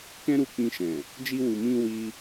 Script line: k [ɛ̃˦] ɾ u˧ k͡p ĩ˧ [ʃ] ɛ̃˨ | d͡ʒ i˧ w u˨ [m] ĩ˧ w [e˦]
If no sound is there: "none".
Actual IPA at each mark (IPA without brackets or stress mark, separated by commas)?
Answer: ɛ̃˦, ʃ, m, i˦